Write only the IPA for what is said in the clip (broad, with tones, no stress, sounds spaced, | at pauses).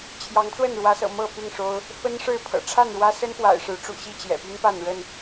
t͡ɕʰ j ɑ˨˦ ŋ t͡s w ə˥˨ n ɻ w ä˨˦ s ɤ̰˨˩ m ɤ˥˨ p i˥˨ ŋ ʂ o˦ ʊ̯ | f ə˦ n ʂ ɻ̩˥˨ pʰ ɤ̰˨˩ ʈ͡ʂʰ a˥˨ n ɻ w ä˦ s ə˦ n p w a̰˨˩ ɪ̯ ʂ ɻ̩˨˦ ʈ͡ʂ ṵ˨˩ ɕ i˥˨ t͡ɕ j ɛ̰˨˩ p y˦ n p a˥˨ n ɻ ə˥˨ n